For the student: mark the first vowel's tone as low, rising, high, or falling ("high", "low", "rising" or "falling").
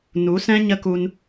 rising